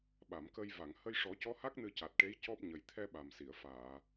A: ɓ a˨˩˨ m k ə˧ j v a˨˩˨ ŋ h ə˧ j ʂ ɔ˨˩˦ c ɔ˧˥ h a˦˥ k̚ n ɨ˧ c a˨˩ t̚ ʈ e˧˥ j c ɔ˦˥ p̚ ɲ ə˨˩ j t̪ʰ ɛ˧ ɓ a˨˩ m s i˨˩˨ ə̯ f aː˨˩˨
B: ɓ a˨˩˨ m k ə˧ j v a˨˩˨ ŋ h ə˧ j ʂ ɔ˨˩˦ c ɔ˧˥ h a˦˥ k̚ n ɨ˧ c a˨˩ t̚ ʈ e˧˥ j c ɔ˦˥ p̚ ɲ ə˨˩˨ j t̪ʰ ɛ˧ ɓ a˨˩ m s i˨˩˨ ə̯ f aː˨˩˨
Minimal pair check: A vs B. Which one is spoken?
A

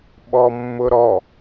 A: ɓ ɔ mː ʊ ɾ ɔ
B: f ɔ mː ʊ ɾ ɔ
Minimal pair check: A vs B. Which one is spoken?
A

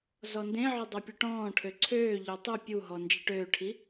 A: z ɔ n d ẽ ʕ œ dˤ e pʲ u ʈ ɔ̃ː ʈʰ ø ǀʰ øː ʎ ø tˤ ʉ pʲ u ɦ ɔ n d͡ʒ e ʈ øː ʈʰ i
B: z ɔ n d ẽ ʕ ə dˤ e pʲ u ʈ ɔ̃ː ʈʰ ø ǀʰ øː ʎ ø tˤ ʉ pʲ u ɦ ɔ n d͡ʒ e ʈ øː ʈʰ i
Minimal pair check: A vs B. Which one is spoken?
A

